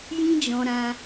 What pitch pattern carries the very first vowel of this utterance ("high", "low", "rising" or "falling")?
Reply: high